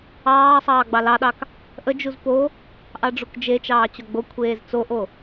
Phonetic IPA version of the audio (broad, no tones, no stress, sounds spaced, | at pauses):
ɑː sˤ ɑː ɡ͡b ɑ l ɑ ɗ ɑ k | ʔ ə d͡ʒ u z p o | ʔ ɑ ɖ͡ʐ u k d͡ʒ e t͡ʃ ɑː t͡ɕ o ɡ͡b o kʷʰ eː z t͡s o ʔ o